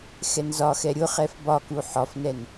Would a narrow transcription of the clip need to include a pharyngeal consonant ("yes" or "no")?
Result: yes